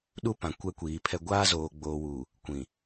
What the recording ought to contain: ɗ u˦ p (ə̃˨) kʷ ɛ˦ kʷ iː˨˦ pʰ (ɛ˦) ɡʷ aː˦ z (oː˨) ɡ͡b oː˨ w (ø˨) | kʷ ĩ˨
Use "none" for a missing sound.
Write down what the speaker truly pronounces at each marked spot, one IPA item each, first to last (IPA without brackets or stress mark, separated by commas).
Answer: ã˨, ɛ˦, oː˨, u˨